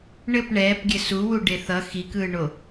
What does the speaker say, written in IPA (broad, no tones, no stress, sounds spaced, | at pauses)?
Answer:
ɳ ɘ p ɳ ɛː p ɡʲ ɘ s u w u ɖ e θ ʌ x i k ɯː ɳ o